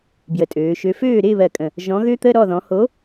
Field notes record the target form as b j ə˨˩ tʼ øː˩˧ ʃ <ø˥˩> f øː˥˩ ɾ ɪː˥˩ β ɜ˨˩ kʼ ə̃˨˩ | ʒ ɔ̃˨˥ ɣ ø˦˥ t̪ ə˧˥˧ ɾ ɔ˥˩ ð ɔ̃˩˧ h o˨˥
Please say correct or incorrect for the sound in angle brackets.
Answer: incorrect